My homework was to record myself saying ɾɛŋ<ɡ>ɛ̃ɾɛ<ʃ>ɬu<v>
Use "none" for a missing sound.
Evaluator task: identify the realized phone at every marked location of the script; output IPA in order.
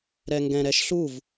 ɡ, ʃ, v

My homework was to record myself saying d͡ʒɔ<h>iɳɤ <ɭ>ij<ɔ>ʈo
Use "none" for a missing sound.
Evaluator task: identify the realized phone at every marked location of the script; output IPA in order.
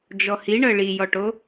h, ɭ, ɔ

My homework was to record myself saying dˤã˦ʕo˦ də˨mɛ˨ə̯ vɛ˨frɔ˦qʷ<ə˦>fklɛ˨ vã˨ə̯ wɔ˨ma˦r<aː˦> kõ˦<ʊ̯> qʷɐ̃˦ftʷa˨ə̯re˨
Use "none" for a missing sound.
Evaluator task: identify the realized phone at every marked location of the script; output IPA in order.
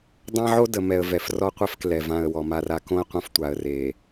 ɛ˦, a˦, ə̯

